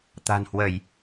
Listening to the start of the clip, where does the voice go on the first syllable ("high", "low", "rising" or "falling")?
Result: low